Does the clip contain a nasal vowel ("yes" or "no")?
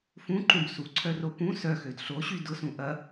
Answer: yes